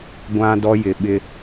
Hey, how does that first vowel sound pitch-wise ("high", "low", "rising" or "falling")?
high